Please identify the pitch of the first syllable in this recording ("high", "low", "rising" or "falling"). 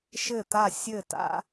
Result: falling